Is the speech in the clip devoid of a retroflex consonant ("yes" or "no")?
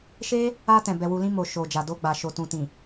yes